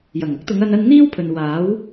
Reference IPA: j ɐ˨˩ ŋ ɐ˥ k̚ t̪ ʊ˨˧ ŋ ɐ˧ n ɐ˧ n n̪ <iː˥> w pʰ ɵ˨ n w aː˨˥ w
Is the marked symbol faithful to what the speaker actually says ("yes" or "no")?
yes